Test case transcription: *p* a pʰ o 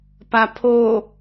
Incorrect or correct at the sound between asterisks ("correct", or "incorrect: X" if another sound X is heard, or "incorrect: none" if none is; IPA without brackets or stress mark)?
correct